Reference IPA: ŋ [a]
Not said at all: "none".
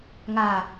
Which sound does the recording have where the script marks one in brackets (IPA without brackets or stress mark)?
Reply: a